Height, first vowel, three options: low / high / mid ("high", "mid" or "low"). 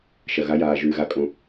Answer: low